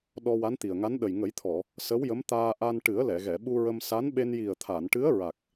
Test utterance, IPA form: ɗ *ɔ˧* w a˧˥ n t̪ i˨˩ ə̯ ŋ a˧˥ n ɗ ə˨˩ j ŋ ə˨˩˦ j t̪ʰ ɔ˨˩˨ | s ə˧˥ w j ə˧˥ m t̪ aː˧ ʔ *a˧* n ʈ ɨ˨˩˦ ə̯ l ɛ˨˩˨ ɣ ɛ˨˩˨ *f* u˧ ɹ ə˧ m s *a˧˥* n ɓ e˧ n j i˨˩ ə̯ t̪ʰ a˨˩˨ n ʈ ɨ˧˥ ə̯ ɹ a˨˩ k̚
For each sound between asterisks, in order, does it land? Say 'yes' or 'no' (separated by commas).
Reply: yes, yes, no, yes